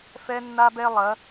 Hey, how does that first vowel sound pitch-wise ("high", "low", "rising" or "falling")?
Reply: high